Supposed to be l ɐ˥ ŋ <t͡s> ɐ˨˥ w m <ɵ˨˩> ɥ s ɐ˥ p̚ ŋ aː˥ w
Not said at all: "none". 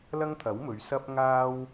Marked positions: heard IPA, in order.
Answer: t̪ʰ, ɵ˨˧

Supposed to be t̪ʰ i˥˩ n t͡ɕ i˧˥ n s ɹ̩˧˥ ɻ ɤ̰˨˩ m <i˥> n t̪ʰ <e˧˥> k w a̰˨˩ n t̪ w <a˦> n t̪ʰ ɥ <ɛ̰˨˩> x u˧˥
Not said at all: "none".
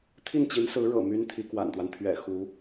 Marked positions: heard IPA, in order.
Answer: y˥, i˧˥, a˦, ɛ̰˨˩

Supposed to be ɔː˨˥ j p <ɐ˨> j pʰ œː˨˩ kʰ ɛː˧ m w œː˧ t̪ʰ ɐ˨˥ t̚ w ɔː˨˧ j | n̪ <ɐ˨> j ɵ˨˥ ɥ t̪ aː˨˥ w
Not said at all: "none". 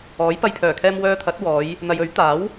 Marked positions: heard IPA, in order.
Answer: ɐ˧, ɐ˨

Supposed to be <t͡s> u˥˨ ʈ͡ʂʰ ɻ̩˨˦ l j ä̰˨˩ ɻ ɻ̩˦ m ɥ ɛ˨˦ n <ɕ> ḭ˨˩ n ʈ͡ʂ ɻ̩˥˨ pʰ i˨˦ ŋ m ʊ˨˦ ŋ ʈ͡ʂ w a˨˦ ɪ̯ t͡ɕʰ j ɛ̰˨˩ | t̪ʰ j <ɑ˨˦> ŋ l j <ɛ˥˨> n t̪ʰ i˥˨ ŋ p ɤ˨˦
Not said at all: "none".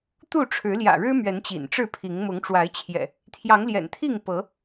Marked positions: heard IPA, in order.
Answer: t̪, t͡ɕ, ɑ˨˦, ɛ̰˨˩

